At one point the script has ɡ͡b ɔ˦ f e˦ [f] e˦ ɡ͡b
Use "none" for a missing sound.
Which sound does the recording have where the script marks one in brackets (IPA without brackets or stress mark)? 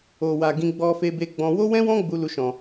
b